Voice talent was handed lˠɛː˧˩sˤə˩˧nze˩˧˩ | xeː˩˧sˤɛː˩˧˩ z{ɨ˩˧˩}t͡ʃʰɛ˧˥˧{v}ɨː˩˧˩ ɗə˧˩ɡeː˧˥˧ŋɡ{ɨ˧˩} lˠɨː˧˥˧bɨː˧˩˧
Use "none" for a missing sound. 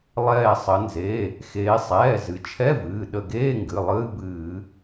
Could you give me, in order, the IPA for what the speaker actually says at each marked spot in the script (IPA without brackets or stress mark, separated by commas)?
ɨ˩˧, v, ɨ˩˧˩